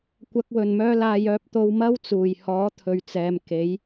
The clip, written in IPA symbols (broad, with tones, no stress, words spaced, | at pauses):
kʷɐ˨k̚wɵ˨˩nmœː˧laː˨j œː˨p̚t̪o˨w mɐ˥w t͡suː˨˩jhɔː˨˥ t̪ʰɵ˨ɥt͡sɛː˨m ke˨˥j